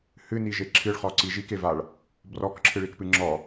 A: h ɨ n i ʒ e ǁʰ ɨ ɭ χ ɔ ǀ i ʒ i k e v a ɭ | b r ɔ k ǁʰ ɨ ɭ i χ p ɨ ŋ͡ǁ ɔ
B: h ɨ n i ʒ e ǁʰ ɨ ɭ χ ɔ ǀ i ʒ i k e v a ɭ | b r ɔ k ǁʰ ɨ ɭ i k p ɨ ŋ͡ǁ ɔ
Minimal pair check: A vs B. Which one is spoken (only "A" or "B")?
B